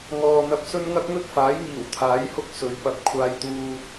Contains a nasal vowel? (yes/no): no